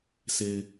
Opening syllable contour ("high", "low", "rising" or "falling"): low